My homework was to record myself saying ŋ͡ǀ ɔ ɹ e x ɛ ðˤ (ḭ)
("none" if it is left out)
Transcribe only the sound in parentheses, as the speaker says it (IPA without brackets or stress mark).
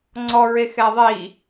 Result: i